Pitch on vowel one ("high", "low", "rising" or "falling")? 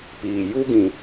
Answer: low